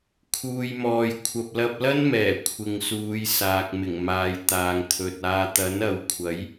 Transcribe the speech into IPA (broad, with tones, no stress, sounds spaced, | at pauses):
kʰ uː˨ j m ɔː˨ j kʷʰ ɐ˨ p̚ l ɐ˧ p̚ l ɐ˥ n m ɛː˨˩ kʷʰ ɪ˨ ŋ s uː˨˧ j s aː˨ k̚ m ɪ˨˩ ŋ m aː˨˧ j t̪ aː˨ ŋ t̪ʰ ɵ˨ t̚ aː˧ t̪ ɐ˨˥ n ɐ˨˧ w kʷʰ ɐ˨˥ j